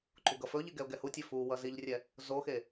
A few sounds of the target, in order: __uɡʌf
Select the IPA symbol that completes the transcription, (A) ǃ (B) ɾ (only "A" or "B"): A